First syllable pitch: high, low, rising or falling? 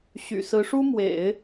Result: low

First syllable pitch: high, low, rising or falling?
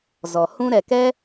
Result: low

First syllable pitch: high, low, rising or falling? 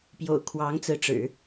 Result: low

